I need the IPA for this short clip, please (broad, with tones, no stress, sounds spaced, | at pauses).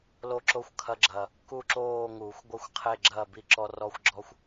l o˦ ǁ o˦˨ xʷ kʰ ɐ˦ ɡ͡ǁ ɐ˨˩ | k u˦˨ ǁ oː˦˨ ŋ uː˨˩˦ xʷ ɡʷ ɐ˦ xʷ qʰ e˦˨ ɡ͡ǁ ɐː˦˨ b i˦˨ ǁ ɔ˦ r ɔ˦ xʷ ɡ͡ǁ ɔ˦ xʷ